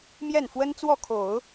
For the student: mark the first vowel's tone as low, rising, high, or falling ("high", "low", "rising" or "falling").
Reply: falling